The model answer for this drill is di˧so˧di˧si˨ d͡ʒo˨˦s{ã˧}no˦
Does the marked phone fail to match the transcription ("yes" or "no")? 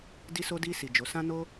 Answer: yes